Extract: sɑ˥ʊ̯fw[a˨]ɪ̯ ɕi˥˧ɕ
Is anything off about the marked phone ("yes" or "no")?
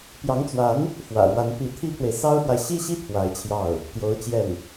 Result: no